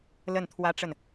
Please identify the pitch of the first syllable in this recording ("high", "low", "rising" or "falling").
falling